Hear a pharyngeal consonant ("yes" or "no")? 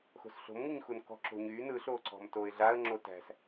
no